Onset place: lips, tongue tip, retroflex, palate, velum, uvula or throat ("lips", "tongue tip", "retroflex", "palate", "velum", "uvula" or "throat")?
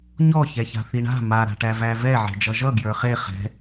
palate